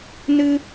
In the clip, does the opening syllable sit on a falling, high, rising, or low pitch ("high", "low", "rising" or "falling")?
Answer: high